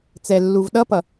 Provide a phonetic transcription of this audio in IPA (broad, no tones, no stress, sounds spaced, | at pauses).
t͡s ɛ lː u v ɗ ʌ p ʌ